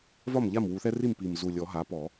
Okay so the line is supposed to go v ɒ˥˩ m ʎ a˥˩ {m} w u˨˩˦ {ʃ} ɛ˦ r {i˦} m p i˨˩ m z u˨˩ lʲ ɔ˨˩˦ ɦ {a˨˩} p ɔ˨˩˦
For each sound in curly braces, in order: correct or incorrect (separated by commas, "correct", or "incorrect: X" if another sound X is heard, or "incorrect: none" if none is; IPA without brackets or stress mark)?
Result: correct, incorrect: θ, incorrect: i˥˩, incorrect: a˩˥